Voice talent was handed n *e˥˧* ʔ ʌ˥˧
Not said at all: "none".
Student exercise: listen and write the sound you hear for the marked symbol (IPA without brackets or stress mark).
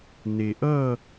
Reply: e˨